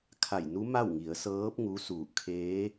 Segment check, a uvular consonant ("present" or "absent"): absent